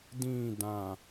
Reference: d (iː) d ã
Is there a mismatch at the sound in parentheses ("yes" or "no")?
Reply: yes